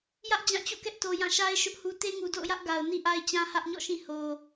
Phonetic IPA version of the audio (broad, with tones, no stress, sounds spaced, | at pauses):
j ä˦ ʔ d͡ʑ ã˦˨ t͡ɕ o̰˦˨ k ɛ˦ ʔ t o˨ j ã˦˨ ʃ a˦ ɪ̯ ʃ ʊ˦ ʔ h u˦ t e˦ ŋ u˨ d o̰˦˨ ʊ̯ j ä˦ ʔ ɡ a˨ ʊ̯ n i˦ ʔ a˦ ɪ̯ t͡ɕ ã˦ h ä˦ ʔ ɲ ɔ̰˦˨ ʃ ĩ˦˨ h o˨